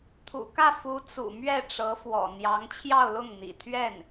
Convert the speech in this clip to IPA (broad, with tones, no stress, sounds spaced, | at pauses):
t̪ʰ ṵ˨˩ k ä˥˩ f u˥ t͡s ṵ˨˩ m ɥ ɛ˥˩ ʈ͡ʂ ɤ˧˥ f w ɔ̰˨˩ n̪ j ɑ˧˥ ŋ t͡ɕʰ j ɑ˥˧ ʊ̯ l ʊ˥˩ ŋ n̪ ḭ˨˩ t̪ʰ ɥ ɛ˥˩ n